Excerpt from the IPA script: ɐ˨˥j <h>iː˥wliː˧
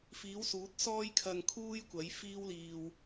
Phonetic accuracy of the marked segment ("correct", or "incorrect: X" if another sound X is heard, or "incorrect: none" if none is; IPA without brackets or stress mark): incorrect: f